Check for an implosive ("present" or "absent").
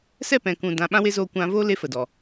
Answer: present